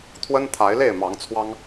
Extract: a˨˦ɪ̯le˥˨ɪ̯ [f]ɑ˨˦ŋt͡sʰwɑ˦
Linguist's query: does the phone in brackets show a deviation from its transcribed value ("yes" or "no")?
yes